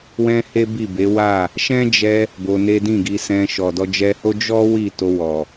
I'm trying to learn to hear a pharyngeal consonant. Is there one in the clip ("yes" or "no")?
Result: no